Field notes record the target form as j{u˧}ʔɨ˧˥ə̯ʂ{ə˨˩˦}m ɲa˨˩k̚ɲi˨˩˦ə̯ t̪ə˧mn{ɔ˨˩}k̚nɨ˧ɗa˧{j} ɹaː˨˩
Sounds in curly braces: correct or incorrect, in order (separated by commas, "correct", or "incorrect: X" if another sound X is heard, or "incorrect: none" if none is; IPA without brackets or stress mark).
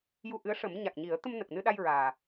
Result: correct, correct, incorrect: ə˨˩, correct